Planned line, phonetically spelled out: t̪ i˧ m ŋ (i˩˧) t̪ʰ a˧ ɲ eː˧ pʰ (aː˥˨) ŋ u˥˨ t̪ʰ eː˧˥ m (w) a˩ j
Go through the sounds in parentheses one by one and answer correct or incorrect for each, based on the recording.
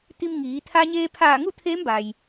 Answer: incorrect: iː˩˧, incorrect: aː˧˩, incorrect: b

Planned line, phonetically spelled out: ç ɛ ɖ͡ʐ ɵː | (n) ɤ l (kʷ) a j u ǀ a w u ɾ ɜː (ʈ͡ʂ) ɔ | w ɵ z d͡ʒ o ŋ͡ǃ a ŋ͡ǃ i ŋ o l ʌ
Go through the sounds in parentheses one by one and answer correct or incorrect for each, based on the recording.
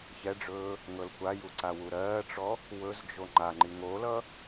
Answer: incorrect: ŋ, correct, correct

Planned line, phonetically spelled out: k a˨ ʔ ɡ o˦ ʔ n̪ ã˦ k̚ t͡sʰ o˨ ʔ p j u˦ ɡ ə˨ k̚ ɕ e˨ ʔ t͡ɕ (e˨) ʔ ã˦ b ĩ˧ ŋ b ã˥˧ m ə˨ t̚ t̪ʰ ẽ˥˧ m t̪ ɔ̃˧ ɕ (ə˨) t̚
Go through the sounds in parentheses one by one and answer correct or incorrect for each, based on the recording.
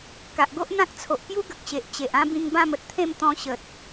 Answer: correct, correct

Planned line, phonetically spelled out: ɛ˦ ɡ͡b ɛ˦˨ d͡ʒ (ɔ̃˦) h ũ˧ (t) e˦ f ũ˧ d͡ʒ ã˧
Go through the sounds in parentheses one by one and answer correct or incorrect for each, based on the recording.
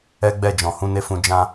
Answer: incorrect: ɔ̃˨, incorrect: n

